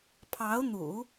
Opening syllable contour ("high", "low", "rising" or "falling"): rising